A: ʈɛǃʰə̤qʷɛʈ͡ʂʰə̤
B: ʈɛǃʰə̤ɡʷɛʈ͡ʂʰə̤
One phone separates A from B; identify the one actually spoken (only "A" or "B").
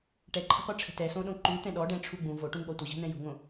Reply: A